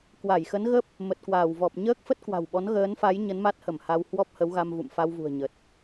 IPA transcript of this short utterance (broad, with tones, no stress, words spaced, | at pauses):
kwa˧˩jxə˨˦nɣə˦˥p̚ | mə˨˩t̚kwaː˧˩wvɔ˨˩p̚ ɲəː˦˥k̚fə˦˥t̚kwa̤˨˩wɓɔ˨˦n ɣəː˨˦nfa˨˦j ɲə˨˦nma˦˥t̚hə˧˩m ha˧w hwɔ˦˥p̚hə˨˦wɣa˧mvṵ˧˨m fa˧wvṳ˨˩ə̯ɲə˨˩t̚